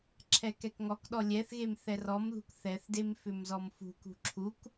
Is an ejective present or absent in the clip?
absent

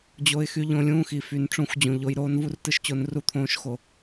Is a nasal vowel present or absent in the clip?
present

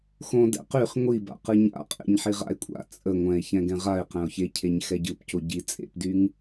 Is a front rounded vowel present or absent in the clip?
present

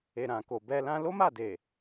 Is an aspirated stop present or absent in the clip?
absent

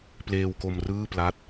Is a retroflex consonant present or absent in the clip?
absent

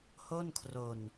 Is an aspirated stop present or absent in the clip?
present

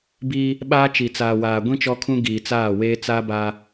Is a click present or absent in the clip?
absent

